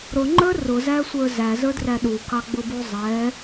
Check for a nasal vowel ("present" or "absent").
absent